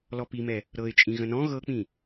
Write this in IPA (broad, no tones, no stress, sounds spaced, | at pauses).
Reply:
l ɔ p i m ɛ | ɾ ɤ ɪ̯ t͡ʃʼ ĩ ɣ ə̃ n ɔ̃ ɣ ɤ k͡p ĩ